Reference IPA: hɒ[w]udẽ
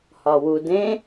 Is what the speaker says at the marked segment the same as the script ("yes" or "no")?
yes